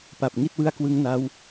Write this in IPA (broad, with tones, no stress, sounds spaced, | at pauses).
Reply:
p a˨˩ p̚ ŋ i˥˩ t̚ w ɯ˦˥ a̯ k w ɯ˦˥ ŋ n a˦˥ w